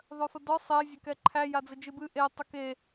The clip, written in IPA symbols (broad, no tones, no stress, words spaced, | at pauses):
ðˤœfədɔ sˤe zʲɛkɛǃʰæ jad͡zɘd͡ʒɨbɨ ʔe tˤɘke